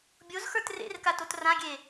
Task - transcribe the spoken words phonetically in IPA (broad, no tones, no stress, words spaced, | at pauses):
bʲozxə˞t rḛrkatot rãɡʲe